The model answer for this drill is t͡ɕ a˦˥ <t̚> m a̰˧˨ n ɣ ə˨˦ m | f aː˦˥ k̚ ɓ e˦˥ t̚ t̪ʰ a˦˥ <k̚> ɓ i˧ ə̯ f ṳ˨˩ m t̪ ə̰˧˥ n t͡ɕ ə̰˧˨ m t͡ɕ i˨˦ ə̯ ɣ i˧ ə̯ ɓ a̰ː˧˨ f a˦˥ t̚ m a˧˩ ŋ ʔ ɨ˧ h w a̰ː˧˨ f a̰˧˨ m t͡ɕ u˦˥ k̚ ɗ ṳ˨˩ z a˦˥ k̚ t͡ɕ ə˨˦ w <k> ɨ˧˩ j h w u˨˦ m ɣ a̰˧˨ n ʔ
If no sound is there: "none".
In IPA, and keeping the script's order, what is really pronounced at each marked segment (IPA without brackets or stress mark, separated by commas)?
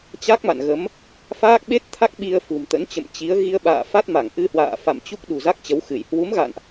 k̚, k̚, x